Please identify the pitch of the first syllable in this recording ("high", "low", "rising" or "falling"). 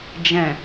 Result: low